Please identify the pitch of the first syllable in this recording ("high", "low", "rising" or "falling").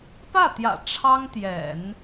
falling